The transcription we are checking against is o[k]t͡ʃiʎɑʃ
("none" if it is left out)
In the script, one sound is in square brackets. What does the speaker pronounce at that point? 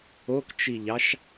k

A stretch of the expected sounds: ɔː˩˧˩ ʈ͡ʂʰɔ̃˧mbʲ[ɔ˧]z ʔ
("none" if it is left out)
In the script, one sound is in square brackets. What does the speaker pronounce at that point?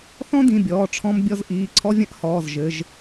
ɔ˧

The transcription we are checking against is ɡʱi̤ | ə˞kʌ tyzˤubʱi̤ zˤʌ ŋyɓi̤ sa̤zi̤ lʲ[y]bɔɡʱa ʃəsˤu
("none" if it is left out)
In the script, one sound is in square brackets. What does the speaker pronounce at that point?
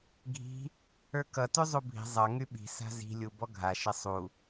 u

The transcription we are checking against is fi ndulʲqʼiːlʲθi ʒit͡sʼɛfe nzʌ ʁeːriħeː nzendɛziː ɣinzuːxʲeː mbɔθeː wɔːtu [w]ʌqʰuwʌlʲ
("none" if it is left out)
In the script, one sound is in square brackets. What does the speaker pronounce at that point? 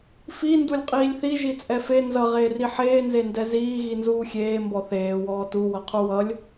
w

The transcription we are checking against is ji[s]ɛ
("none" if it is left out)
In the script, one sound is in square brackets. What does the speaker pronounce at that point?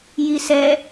s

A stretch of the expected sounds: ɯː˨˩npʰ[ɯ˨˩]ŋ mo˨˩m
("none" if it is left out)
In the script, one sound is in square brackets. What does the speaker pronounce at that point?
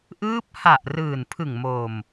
ɯ˨˩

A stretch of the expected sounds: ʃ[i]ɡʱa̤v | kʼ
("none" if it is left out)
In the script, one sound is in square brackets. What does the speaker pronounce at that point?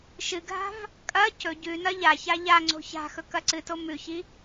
ɨ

